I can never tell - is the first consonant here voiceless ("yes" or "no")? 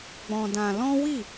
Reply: no